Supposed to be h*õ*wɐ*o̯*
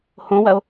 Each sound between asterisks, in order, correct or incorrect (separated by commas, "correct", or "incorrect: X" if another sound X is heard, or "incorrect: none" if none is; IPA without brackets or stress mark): correct, correct